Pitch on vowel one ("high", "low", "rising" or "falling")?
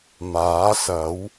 rising